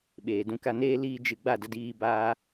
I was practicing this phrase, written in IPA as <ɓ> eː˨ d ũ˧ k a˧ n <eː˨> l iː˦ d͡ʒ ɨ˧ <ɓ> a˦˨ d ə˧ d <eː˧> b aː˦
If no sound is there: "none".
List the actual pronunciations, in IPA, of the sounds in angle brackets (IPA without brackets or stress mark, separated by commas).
ɓ, eː˦, ɡ͡b, iː˧